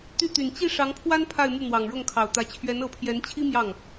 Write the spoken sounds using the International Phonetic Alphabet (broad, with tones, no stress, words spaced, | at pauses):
t̪y˥˩t̪y˨˩n t͡ɕi˥˩ ʂɑ˧˥ŋpʰwa˥n pʰa˥˧ɪ̯mu˥˩ n̪wɑ˨˩ŋɻɤ˥˩ŋkʰɑ˨˩ʊ̯t̪ä˧˥ t͡ɕʰɥɛ˧˥nɤ˧˥pʰjɛ˧˥nt͡ɕʰi˥ mjɑ˥˩ŋ